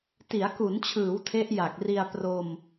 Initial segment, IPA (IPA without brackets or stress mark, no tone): t